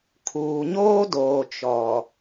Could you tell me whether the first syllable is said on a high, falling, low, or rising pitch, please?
low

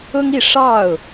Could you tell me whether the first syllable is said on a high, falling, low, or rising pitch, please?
high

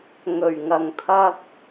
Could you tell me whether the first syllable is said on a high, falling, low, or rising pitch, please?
low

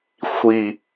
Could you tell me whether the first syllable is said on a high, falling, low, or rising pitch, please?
low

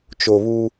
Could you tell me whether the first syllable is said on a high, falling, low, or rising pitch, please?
low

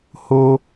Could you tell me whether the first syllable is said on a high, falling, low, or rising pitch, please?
high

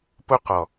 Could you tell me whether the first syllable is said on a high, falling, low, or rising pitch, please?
high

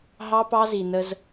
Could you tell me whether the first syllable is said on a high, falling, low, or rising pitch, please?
high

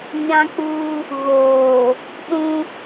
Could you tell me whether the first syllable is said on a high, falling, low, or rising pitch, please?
high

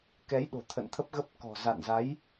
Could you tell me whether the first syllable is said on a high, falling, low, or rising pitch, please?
rising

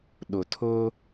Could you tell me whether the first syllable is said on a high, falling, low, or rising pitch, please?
low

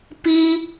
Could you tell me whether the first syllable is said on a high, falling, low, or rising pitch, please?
high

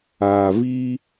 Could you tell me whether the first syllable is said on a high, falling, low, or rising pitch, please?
low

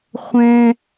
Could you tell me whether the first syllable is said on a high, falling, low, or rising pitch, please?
high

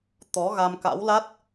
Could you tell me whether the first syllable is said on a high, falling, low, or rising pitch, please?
rising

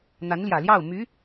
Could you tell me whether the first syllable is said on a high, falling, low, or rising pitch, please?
rising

